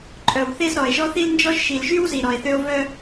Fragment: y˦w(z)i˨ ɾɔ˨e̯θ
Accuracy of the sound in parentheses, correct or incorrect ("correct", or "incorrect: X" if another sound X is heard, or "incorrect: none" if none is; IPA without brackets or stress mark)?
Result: correct